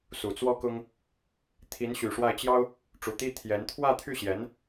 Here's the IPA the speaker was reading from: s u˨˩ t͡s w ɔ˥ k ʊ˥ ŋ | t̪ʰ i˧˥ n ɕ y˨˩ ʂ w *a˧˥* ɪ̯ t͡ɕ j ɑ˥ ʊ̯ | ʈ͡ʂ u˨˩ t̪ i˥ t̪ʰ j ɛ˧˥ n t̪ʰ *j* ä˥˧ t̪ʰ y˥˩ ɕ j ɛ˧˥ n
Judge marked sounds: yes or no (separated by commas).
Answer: no, no